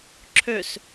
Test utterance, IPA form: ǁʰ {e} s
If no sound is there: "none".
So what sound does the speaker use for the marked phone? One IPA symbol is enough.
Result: ø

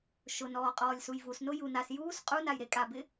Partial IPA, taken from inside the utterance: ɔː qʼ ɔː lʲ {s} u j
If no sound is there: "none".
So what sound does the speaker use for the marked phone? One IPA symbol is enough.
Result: s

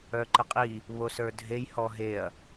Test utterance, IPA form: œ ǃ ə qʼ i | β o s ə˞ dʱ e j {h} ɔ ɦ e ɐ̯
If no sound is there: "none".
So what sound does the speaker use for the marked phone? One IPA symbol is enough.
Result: h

